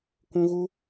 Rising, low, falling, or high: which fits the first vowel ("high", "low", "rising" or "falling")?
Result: high